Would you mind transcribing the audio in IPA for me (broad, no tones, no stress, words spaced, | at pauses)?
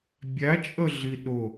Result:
bʲæt͡ʃʼəɮi ɗʊ